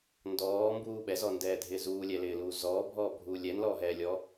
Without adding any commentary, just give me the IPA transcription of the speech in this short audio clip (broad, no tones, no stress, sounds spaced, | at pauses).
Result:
n d ɔː m b uː ɓ ɛ z ɔ n d ɛː dʱ ɪː z uː lʲ ɛ l ɪː l uː z ɔː bʱ ɔː bʱ uː lʲ ɛ n l ɔː ɦ ɛː lʲ ɔː